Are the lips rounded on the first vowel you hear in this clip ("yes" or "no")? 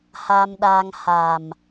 no